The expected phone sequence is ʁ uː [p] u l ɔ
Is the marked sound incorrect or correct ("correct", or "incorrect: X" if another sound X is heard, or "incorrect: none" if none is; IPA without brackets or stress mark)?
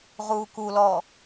incorrect: k